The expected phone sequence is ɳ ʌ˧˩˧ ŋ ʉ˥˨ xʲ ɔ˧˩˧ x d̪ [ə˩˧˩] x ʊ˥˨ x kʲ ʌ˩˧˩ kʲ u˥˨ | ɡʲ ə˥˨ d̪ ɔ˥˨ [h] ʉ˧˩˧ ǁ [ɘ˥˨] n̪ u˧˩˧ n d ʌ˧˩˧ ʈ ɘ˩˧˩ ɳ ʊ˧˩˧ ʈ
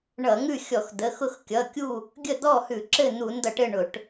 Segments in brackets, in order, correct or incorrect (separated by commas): correct, correct, correct